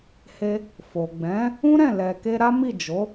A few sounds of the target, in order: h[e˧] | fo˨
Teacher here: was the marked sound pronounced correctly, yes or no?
yes